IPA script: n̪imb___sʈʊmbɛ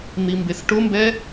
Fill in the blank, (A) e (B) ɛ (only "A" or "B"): A